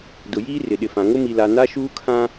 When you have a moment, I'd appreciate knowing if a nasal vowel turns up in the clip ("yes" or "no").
yes